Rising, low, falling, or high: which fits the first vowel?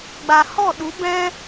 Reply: low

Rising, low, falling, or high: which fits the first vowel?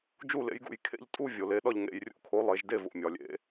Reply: falling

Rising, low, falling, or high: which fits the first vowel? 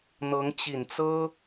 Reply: rising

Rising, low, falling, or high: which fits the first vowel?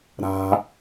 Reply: high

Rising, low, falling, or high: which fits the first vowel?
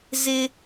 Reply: high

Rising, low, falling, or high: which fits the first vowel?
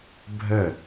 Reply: falling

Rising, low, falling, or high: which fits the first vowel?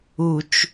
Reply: low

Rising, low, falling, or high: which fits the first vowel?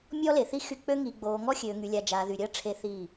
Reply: high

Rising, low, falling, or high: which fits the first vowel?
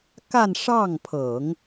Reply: falling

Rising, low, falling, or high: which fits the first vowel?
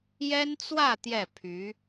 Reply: high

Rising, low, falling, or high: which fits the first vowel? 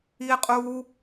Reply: high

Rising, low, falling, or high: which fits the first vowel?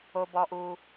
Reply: high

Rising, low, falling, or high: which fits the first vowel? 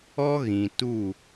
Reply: high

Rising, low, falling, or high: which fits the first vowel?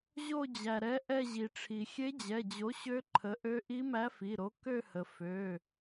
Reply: falling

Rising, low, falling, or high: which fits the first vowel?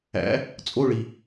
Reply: rising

